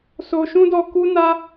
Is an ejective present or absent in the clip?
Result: absent